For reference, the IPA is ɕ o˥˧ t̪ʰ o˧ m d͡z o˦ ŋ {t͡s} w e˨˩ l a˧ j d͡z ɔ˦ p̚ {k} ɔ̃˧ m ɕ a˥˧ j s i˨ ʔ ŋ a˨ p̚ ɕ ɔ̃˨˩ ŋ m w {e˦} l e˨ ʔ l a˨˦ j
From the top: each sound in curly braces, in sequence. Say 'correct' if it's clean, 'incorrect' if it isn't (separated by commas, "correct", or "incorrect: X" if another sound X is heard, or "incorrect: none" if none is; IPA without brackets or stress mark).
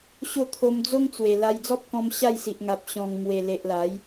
correct, correct, incorrect: e˨˩